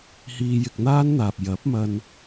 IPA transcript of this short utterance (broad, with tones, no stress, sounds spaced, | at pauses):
h iː˧ j ɪ˧ k̚ n̪ aː˥ n n̪ aː˨ p̚ j ɐ˨˥ p̚ m ɐ˧ n